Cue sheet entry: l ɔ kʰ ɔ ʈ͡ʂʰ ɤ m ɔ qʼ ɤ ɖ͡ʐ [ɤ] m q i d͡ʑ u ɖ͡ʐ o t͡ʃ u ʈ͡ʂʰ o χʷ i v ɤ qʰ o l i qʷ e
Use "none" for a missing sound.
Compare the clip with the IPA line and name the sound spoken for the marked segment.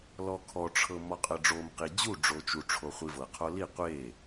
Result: o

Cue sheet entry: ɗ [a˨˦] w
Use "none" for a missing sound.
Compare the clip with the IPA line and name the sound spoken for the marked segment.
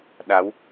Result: a˨˦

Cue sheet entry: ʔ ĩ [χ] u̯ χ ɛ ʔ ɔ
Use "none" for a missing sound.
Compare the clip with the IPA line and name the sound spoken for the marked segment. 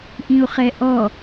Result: none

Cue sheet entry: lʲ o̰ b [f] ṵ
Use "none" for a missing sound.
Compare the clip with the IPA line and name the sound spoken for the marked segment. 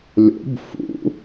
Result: f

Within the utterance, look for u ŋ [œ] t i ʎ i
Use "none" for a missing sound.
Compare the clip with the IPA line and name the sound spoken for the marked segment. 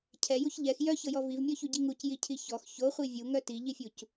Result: œ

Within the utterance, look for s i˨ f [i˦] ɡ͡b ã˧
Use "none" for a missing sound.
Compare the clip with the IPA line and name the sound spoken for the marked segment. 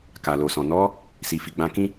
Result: i˨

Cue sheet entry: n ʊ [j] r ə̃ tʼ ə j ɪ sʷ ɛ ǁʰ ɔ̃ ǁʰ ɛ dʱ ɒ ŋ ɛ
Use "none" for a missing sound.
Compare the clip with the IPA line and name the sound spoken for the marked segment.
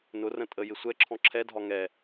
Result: none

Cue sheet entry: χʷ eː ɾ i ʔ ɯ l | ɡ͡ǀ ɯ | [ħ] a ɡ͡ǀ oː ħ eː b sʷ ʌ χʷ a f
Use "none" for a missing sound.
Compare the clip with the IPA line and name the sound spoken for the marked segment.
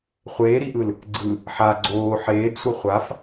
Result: ħ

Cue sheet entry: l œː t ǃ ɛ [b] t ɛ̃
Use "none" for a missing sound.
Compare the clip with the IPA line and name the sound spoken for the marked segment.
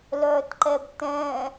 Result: b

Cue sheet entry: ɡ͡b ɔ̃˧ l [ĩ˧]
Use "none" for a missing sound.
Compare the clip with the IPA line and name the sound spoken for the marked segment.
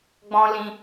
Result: ĩ˧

